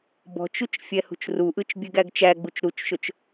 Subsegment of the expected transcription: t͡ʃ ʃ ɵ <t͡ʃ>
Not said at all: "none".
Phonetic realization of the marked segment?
t͡ʃ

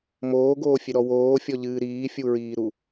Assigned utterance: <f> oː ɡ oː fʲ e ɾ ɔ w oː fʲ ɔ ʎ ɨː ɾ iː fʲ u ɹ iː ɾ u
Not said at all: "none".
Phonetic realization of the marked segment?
m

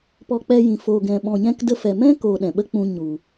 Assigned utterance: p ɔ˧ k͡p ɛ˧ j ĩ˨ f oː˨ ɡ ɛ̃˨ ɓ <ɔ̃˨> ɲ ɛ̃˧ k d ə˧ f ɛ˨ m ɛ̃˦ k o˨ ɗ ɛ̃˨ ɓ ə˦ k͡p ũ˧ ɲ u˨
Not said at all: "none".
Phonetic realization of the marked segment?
ɔ̃˨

